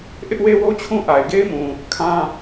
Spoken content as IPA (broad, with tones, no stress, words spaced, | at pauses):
ʔɪ˦ʔwe˦wo˦t͡ɕʰũ˦ ʔa˨ɪ̯ɡe˦ɪ̯mũ˨ | kʰã˦